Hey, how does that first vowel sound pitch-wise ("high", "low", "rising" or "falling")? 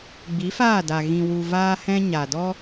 rising